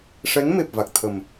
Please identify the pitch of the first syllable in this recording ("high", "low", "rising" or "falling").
rising